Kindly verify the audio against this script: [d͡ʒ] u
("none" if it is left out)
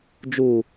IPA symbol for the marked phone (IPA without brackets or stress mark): d͡ʒ